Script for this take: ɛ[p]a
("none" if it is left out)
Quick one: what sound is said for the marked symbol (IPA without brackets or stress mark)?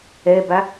b